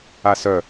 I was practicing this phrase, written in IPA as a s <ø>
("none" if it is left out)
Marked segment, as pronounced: œ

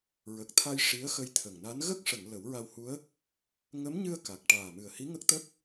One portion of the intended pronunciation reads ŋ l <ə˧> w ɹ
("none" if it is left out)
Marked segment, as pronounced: ə˨˩˦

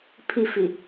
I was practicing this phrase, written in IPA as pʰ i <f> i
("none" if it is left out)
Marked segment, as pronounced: f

